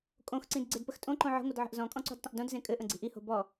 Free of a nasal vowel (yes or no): no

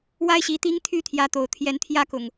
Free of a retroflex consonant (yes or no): yes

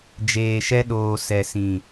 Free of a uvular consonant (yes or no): yes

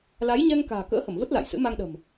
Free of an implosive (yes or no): no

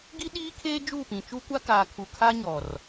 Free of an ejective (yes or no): yes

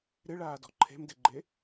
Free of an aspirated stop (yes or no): no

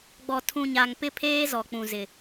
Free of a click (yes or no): yes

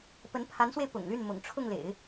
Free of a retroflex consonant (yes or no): no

